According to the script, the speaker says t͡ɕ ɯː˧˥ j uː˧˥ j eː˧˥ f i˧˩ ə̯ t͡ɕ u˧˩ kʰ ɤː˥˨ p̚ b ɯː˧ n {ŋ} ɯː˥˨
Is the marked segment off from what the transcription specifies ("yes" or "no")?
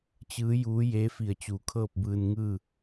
no